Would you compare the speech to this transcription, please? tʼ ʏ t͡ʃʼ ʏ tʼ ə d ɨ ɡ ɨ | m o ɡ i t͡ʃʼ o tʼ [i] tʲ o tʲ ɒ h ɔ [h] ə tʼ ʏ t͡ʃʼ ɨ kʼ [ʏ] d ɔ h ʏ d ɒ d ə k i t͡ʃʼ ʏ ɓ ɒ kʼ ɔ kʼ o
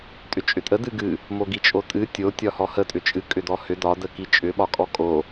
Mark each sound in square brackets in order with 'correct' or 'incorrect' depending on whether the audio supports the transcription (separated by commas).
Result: incorrect, correct, correct